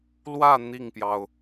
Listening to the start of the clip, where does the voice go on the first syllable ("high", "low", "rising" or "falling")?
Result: falling